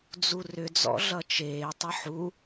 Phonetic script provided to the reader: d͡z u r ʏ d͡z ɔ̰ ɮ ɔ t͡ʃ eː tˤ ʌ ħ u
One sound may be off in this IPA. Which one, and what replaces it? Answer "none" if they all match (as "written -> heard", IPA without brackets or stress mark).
ɔ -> ʌ